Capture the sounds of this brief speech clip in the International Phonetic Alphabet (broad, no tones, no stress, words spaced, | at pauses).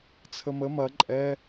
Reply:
t͡sʰəmə mɐ ǃʼɛ